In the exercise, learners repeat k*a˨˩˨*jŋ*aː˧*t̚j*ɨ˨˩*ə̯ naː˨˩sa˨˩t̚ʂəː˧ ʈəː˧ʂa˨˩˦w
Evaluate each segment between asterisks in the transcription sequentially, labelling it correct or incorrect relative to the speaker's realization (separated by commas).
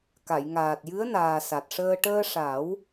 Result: correct, incorrect, incorrect